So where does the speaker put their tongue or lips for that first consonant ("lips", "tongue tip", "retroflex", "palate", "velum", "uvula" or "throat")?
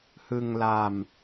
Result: throat